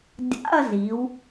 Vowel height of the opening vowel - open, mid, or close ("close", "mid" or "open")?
open